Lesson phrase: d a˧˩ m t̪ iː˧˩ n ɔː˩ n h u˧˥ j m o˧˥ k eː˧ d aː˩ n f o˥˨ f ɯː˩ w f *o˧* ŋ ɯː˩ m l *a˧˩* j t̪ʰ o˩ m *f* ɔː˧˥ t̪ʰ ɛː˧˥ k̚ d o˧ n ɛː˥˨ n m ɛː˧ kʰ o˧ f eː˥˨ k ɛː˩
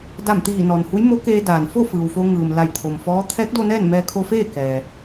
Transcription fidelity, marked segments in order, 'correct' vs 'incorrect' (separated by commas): correct, correct, correct